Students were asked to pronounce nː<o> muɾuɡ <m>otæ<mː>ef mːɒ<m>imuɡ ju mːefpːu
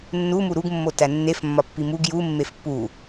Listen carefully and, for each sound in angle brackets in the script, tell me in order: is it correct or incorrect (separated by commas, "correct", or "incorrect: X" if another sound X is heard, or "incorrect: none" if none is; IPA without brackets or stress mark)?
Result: incorrect: u, incorrect: mː, incorrect: nː, incorrect: pː